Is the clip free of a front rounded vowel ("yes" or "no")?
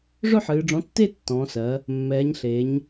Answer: no